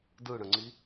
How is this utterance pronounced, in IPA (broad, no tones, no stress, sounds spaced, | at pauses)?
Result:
d ɯ ɽ ə̃ ŋ͡ǀ i